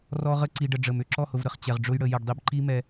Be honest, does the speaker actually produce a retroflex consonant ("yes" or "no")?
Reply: yes